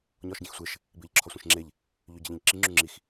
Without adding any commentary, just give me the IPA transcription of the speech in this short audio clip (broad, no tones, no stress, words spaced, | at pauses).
ɲɒːʃɟẽxsʷeʃ | bɪːʎǁʰɒsʷẽʃŋ͡ǁeʎ | ʎøɟɪʎĩʎǁi ŋ͡ǁʉŋ͡ǁix